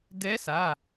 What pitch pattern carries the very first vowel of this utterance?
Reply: rising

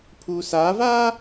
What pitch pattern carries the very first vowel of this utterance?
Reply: low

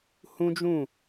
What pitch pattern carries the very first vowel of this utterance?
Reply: high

